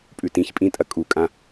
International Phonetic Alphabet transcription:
pʼ ʉ t ĩ ç pʼ ĩ tʼ ɐ kʼ u kʼ ã

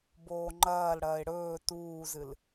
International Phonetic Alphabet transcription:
b oː ŋ͡ǃ ɐː l ɽ ɐː ɪ̯ ɽ ɵː t uː z ɨ l

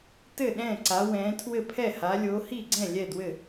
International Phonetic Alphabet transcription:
t ɘ˥˩ ɗ ɛ̃ː˥˩ ǀ a˨˦ w ɛ̃ː˨˦ tʰ w ɘ˥˩ pʰ ɛ˥˩ h a˨˦ lʲ oː˨˦ h i˥˩ ɡ͡ǀ ɛ̃˥˩ lʲ ɛ˥˩ d w ɘ˥˩

